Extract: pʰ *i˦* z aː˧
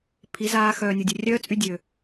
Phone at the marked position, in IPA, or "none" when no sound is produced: i˨˦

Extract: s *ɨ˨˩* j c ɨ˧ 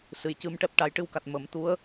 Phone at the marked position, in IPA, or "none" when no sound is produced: ɨ˨˩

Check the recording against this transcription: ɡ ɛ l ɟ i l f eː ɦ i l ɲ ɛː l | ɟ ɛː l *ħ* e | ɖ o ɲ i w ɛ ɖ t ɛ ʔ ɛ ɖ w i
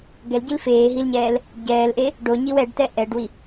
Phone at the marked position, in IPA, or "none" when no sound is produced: ʔ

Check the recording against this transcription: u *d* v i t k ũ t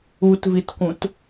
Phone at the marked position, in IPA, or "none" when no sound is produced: t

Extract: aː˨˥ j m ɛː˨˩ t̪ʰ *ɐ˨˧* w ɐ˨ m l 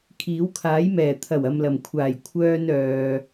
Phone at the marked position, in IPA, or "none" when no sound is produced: ɐ˨˩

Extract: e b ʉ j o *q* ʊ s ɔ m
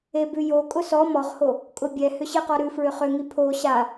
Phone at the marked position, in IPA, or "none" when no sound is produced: kʼ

